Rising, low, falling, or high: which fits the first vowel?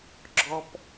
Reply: high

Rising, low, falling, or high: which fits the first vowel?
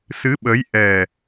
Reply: rising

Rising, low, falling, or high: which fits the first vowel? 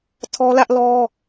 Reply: high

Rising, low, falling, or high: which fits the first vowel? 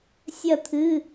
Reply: falling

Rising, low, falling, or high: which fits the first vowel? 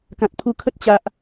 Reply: low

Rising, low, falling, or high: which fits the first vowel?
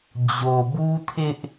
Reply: low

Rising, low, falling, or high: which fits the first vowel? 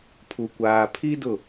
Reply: low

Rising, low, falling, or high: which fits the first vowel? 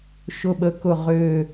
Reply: low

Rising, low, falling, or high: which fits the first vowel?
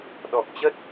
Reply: low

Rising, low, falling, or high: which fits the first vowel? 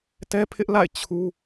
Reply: high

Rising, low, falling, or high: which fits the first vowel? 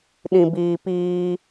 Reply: low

